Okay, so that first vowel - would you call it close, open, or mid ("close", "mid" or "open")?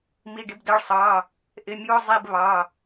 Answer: close